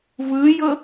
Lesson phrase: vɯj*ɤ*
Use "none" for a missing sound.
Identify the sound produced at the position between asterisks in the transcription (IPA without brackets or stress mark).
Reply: ɤ